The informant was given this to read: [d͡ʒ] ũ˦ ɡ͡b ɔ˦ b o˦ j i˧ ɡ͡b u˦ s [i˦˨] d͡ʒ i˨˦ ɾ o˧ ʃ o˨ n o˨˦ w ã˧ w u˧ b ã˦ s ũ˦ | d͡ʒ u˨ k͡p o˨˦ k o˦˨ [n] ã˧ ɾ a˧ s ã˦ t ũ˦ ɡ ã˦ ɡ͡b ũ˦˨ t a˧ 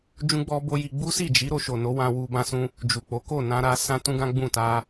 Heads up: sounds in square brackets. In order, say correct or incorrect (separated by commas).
correct, correct, correct